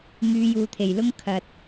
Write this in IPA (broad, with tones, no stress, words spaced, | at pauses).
ŋyː˨˧juː˨t̪ʰe˨˩jlʊ˥ŋ kʰɐ˧t̚